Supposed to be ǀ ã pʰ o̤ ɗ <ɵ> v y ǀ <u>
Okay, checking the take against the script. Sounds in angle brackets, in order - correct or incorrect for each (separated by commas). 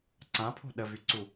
incorrect, correct